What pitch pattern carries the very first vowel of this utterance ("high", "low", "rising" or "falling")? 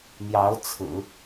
rising